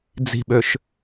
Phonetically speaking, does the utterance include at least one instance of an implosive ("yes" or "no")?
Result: yes